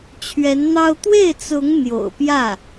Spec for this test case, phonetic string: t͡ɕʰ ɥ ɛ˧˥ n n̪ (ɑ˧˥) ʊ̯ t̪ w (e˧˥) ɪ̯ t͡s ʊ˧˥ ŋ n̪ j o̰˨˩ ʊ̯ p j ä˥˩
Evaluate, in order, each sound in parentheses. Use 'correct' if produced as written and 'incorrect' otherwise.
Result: incorrect: ɑ˥, incorrect: e˥˩

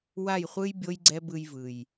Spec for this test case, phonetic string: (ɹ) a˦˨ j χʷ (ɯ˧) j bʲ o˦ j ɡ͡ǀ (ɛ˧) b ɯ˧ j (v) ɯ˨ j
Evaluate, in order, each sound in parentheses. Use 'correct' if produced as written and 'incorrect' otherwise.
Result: incorrect: w, incorrect: ɯ˦, incorrect: ɛ˦, correct

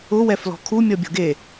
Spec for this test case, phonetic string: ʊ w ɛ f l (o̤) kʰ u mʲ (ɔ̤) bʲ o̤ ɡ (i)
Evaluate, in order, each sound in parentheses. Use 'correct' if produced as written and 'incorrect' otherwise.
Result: incorrect: ɔ̤, incorrect: ɔ, incorrect: e

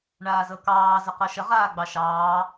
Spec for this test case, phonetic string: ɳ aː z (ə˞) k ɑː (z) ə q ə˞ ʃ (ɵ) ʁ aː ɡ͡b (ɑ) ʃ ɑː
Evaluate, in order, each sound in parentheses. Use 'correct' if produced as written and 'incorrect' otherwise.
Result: incorrect: ɤ, correct, incorrect: ə, correct

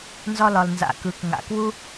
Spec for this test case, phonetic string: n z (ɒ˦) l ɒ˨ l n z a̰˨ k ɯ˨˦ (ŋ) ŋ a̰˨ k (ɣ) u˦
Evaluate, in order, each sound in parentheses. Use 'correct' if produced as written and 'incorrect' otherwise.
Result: incorrect: ɒ˧, incorrect: k, incorrect: w

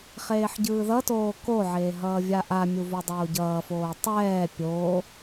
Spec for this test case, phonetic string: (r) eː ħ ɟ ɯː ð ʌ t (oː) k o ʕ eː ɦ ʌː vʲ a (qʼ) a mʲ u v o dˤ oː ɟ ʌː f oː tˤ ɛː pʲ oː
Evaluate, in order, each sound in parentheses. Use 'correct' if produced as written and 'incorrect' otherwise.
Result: incorrect: χ, correct, incorrect: ʔ

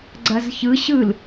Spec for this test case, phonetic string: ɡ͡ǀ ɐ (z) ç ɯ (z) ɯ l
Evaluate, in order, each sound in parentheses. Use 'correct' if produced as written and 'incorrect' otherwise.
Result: correct, incorrect: ɕ

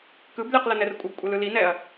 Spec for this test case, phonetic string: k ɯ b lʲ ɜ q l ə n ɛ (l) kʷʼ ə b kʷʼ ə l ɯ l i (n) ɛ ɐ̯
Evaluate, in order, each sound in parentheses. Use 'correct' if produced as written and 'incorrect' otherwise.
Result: incorrect: r, correct

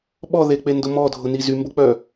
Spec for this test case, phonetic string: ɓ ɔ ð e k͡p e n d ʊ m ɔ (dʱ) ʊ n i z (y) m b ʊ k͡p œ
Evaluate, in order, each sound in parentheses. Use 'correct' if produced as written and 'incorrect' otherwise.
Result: correct, correct

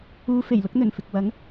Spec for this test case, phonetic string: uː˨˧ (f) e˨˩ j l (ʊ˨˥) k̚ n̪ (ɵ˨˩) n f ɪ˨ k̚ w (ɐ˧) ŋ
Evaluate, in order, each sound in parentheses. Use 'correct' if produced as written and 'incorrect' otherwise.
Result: correct, correct, correct, incorrect: ɐ˨˥

